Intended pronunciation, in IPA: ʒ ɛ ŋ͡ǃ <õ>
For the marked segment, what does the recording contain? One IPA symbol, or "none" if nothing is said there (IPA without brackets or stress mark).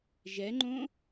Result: õ